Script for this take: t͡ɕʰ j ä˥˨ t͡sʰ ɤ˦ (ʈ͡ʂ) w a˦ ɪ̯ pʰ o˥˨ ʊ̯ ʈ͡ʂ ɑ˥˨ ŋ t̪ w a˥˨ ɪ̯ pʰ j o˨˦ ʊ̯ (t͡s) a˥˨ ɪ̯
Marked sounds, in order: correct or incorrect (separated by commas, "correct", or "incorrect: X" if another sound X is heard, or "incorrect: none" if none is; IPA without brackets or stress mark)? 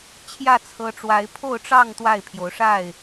correct, incorrect: ʂ